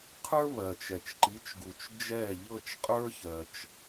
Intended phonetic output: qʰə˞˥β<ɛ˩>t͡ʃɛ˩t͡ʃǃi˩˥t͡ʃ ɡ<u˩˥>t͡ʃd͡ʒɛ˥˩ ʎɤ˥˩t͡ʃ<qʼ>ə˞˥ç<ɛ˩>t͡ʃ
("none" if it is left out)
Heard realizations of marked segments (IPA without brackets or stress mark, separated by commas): ɜ˩, u˩, qʼ, ɜ˩